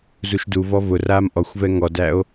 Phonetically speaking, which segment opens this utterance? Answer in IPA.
z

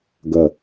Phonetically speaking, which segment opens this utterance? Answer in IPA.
ɡ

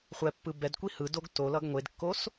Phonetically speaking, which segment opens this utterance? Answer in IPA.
χʷ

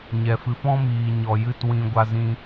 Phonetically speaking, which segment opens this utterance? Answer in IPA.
ɲ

